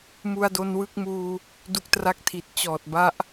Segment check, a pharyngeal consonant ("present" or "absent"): absent